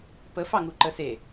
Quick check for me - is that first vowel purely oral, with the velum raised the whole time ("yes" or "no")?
yes